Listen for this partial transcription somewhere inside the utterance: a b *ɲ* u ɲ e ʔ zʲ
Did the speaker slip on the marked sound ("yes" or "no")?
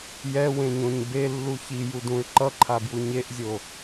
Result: yes